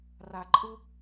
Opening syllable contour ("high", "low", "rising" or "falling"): low